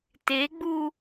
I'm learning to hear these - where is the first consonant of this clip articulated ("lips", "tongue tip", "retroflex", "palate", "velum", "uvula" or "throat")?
tongue tip